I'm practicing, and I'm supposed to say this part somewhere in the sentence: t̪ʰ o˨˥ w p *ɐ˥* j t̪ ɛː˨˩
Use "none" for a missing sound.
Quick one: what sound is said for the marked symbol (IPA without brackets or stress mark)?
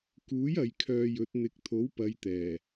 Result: ɐ˨˧